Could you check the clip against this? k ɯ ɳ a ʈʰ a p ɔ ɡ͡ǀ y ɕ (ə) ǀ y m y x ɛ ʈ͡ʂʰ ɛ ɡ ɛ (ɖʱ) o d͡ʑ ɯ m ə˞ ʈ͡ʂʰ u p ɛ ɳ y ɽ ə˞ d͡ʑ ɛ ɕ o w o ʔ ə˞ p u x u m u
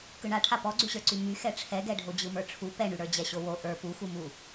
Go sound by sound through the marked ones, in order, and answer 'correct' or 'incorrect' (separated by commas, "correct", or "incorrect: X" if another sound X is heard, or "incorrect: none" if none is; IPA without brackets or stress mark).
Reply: incorrect: ə˞, correct